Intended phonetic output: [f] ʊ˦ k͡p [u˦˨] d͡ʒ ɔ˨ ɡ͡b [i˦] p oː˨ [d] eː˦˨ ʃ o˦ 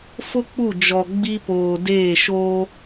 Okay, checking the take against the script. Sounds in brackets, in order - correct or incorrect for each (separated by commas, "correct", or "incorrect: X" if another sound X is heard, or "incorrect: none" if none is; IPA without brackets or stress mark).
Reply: correct, correct, correct, correct